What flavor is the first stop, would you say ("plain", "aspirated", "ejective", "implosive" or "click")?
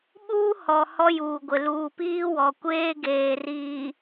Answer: implosive